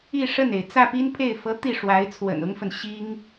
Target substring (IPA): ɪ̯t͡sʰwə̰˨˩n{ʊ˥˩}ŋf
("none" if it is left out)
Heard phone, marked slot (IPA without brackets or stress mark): ʊ˥